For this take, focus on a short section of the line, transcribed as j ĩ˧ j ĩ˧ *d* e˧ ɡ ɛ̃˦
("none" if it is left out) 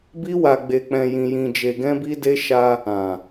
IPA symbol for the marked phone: d͡ʒ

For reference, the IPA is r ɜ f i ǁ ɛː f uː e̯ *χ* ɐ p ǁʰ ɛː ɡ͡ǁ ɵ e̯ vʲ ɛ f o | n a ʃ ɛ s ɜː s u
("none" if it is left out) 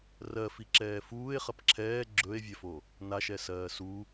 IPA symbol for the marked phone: χ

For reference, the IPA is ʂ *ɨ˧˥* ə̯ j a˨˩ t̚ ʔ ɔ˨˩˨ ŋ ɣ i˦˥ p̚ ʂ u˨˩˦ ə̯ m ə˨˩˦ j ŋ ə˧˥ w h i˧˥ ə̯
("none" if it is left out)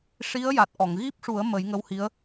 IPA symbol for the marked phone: i˧˥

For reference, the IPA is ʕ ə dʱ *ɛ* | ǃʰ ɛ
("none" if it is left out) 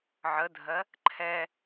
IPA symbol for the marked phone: ɜ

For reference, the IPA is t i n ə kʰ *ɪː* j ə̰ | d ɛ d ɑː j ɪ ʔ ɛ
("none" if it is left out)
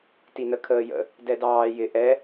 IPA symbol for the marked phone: əː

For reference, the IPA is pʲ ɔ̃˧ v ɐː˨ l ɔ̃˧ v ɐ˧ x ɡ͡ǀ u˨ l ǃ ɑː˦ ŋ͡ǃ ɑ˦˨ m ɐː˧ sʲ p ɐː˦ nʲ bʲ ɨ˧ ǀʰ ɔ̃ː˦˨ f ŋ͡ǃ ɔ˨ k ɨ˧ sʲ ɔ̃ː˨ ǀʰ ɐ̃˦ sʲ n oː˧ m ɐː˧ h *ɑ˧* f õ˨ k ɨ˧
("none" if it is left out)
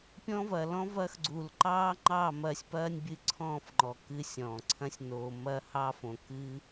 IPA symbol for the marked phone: ɑ˧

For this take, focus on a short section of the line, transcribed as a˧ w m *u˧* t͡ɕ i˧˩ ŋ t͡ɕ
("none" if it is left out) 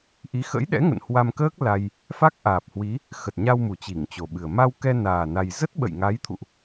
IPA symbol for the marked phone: u˨˩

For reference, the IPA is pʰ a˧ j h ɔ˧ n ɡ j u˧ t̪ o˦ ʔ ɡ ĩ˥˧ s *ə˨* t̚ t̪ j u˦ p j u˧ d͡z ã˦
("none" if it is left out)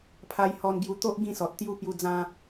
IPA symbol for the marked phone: ɔ˨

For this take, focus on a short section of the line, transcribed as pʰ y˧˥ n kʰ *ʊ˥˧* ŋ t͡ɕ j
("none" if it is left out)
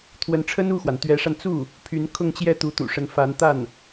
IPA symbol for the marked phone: ʊ˥˧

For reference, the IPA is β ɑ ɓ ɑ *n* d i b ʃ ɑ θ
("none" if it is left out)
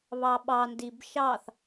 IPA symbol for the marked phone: n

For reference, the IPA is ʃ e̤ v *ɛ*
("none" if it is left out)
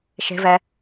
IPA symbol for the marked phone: ɛ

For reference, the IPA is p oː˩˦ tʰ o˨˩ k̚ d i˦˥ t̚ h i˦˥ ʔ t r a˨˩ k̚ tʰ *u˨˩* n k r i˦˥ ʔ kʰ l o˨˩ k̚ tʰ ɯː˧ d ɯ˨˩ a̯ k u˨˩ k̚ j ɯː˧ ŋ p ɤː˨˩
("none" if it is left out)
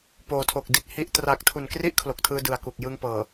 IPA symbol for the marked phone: u˨˩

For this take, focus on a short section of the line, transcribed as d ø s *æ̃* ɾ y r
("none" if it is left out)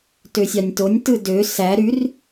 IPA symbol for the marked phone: æ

